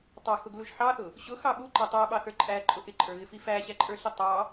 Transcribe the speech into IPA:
tˤ ɑ x ʊ ɡ l u ʒ ħ ɑ θ ʊ | ɕ ʊ x ɑ ɓ u ǃ æ tˤ æ ɓ ɑ θ ə˞ ǃʼ æ ǃʼ ʊ ʔ ɪ ǃʼ ə˞ ɣ ɪ f i f æ ɕ æ ǃʼ ə˞ ɬ i tˤ ɑ

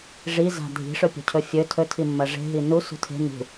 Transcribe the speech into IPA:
ʐ i z a̤ dʱ i̤ ʂ ɵ pʲ o̤ cʰ ɵ fʲ ɵ tʰ ɵ tʰ i mː ɐ ʐ e̤ ɦ i n u s ṳ tʰ e̤ n ṳ

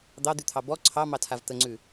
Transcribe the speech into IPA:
d̪ ɑ d̪ ʉ t̪ʰ ɑ b ɔ ǀʰ ɑ m ɑ tʰ a v t̪ ə ŋ͡ǀ ʉ

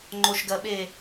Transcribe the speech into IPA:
ŋ͡ǃ o ʃ ɡ ɜ ɓ e

